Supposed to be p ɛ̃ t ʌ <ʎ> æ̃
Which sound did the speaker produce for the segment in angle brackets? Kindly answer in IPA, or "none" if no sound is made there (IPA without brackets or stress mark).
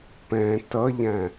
ʎ